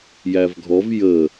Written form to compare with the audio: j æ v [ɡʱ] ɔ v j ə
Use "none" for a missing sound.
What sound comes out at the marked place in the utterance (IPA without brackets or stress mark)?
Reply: ɡʱ